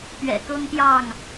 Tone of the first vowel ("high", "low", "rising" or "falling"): low